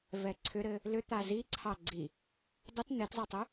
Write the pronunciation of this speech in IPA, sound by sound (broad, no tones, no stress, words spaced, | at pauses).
vɛǀʰʏɾɘ | lʏ t̪aziǀʰɑ ɡ͡ǀi | dˤət n̪ɛtzˤɛtˤʏ